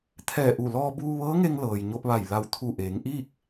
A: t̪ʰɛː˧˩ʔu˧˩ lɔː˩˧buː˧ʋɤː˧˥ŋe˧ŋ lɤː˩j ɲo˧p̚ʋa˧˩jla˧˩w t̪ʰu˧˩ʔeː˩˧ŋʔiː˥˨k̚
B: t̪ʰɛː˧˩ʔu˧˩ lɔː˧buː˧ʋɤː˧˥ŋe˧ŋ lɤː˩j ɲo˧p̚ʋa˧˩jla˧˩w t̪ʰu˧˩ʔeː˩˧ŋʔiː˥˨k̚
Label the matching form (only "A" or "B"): B